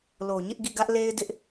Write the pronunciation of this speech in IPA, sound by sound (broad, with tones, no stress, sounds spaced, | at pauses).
l o˨ ɲ ɪ˦ ʔ ɡ ḭ˦˨ ɡ ä˦ ʔ l e˦ ɪ̯ d ɪ˦ ʔ